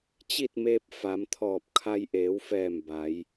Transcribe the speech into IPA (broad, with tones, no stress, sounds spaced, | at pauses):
t͡ɕ i˥˨ t̚ m eː˧ p̚ f a˩˧ m t̪ʰ ɔː˧˩ p̚ kʰ a˧ j ʔ eː˩˧ w f ɛː˧˩ m b a˩˧ j